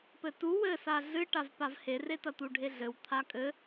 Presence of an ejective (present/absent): present